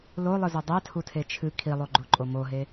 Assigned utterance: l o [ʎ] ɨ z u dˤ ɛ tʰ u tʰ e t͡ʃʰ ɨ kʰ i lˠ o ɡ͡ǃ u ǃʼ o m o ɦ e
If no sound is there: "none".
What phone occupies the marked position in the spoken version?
lˠ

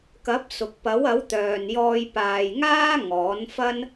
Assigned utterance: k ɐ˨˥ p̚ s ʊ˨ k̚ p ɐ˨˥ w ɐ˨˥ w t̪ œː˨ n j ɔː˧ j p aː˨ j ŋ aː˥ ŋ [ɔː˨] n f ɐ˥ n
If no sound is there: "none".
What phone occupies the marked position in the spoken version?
ɔː˨˥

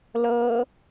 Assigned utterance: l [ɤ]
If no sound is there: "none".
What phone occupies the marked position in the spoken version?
ɤ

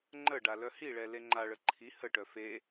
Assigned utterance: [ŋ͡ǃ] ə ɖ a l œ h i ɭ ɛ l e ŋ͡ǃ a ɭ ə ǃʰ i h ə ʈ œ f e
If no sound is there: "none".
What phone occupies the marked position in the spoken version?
ŋ͡ǃ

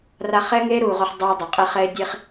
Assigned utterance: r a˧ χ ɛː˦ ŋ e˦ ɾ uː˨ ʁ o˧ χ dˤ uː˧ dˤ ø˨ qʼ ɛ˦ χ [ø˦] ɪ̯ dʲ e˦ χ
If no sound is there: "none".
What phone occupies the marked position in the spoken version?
ɛ˦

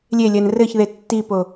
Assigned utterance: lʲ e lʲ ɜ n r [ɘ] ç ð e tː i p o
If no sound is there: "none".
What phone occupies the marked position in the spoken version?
ɘ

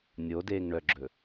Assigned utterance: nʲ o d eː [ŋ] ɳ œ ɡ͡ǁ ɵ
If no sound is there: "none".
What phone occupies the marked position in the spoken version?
ŋ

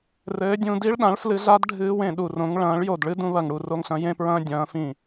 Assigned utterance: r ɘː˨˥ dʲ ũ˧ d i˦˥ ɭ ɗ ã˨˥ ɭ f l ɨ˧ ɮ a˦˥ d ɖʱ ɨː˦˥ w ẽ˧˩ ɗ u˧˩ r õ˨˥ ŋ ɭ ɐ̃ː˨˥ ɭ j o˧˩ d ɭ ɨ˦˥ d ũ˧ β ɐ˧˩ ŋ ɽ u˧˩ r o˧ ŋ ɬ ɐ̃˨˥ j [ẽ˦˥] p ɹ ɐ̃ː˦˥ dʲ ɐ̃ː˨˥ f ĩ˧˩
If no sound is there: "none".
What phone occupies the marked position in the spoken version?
ẽ˦˥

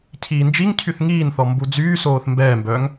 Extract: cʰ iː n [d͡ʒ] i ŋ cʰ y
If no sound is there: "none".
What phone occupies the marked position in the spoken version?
d͡ʒ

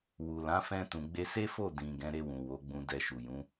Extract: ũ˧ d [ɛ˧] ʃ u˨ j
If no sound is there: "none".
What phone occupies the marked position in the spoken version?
ɛ˧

